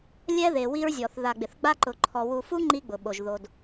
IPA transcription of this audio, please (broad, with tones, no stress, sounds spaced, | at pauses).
lʲ ɛ˦ ð e˨ w i˦ ɹ zʲ ɔ˨ θ ð a˨ ɡ͡b ɪ˨ θ ɡ͡b a˦ ǃ ʊ˨ ǃʰ ɔ˨ w u˨ f u˦ ŋ͡ǃ i˦ ɡ͡b ʊ˨ ɓ o˨ ʒ ð o˨ d